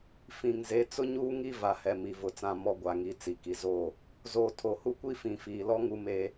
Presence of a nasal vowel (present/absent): present